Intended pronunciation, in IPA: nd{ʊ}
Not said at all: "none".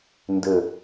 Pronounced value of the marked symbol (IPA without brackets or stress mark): ə